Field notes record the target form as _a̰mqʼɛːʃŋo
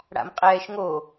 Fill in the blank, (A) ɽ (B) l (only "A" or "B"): A